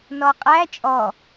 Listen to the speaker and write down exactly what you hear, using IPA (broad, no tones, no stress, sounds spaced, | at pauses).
n ɔ qʼ æ t͡ʃʼ ɔ